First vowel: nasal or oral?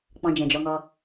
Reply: nasal